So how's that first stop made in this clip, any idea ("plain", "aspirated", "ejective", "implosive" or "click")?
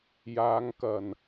plain